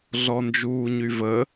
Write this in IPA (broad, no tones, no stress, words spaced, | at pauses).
ɮɔnd͡ʒuːɲyvə